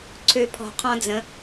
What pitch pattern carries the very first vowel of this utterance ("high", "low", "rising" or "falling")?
high